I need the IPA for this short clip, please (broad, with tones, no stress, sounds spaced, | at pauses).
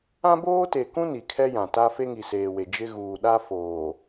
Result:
ã˦ b oː˦ t e˨ k ũ˦ n i˨ kʰ ɛ˦ j ã˨ t a˦ f e˦ ŋ i˨ s eː˨ w e˨ d͡ʒ ɪ˦ ɣ uː˨ ɗ a˦ f oː˨